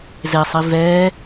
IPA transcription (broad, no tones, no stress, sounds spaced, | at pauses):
z e sˤ i v ɛː